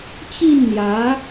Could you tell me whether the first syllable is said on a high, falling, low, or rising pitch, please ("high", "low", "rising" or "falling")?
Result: falling